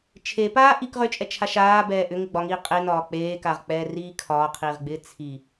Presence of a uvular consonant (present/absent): present